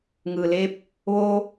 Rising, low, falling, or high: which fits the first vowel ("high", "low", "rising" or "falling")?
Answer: low